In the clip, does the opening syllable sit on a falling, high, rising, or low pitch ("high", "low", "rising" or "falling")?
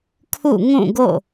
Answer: falling